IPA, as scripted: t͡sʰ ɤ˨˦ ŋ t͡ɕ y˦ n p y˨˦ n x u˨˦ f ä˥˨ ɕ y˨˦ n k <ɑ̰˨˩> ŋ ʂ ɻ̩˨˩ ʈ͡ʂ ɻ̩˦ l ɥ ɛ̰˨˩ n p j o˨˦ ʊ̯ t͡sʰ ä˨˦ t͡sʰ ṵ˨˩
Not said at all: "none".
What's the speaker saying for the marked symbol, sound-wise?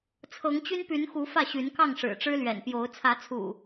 ɑ˥˨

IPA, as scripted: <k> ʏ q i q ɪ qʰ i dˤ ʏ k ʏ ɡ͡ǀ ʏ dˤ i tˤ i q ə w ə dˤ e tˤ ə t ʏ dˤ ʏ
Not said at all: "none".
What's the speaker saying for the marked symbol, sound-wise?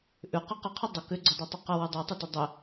ʔ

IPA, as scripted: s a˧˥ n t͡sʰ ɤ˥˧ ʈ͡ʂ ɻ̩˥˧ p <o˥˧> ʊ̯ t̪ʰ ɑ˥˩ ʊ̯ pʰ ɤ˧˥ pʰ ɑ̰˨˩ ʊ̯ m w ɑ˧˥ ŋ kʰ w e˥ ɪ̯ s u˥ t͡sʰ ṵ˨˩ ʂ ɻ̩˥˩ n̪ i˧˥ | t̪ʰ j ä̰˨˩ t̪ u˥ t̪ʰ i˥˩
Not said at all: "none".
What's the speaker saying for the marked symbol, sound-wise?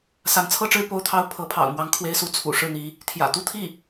o˥˧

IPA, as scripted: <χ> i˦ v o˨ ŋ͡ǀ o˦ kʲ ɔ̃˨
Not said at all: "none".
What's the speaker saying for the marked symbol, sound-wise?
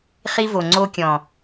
χ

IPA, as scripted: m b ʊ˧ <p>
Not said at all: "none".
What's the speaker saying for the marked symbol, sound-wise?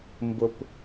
p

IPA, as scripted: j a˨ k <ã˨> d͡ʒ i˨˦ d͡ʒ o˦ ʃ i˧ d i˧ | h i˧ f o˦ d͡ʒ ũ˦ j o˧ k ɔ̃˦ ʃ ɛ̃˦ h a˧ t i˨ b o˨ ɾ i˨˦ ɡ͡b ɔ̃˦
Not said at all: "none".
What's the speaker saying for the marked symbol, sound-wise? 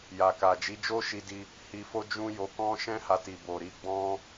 a˨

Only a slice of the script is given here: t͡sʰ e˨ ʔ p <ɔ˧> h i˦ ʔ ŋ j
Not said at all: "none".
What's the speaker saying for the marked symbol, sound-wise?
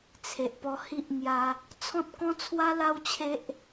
ɔ˧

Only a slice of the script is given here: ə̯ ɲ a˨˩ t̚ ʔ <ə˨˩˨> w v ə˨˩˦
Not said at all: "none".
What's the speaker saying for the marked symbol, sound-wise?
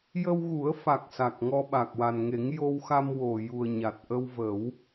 ə˧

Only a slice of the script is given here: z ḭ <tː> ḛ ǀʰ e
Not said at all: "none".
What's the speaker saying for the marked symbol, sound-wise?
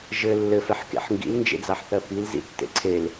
tː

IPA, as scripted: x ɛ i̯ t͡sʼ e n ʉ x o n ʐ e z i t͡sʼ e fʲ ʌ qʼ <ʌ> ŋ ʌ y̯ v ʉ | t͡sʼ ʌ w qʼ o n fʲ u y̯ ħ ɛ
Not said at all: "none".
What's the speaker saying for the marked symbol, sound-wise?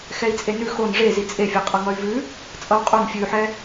ʌ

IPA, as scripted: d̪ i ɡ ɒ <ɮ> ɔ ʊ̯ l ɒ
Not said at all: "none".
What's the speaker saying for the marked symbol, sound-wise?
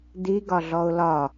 ɮ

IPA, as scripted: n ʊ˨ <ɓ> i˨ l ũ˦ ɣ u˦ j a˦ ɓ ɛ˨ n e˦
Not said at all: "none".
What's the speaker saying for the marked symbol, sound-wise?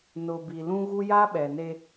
b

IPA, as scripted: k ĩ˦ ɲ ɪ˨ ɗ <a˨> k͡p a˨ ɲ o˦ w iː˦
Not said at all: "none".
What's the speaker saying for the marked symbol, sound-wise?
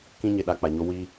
a˨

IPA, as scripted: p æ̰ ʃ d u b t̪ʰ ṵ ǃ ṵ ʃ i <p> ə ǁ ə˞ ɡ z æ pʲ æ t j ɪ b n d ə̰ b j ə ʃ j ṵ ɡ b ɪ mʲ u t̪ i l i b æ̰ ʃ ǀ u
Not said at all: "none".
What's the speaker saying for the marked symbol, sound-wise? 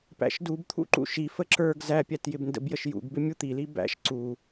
f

